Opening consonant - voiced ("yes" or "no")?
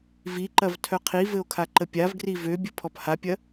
yes